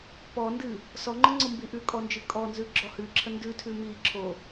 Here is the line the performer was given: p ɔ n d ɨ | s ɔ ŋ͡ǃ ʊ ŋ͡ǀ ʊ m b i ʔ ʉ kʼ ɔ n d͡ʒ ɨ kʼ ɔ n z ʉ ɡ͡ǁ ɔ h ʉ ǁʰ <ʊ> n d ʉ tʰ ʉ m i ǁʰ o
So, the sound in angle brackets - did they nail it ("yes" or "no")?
no